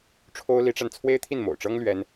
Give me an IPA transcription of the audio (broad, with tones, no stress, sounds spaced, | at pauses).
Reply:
ʈ͡ʂʰ o˥ ʊ̯ l i˧˥ ʈ͡ʂ a˧ n t͡sʰ w e˥ ɪ̯ t̪ʰ i˥˩ n m o̰˨˩ ʊ̯ ʈ͡ʂ ɤ˥ ŋ l ɥ ɛ˥ n